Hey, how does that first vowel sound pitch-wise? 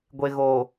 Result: low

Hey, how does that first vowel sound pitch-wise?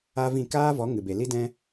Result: high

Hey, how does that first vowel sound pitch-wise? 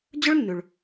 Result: high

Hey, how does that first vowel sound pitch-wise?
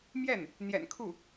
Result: falling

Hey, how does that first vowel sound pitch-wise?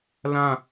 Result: falling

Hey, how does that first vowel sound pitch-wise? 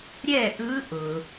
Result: falling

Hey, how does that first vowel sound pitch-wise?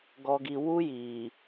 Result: low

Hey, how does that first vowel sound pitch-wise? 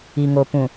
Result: low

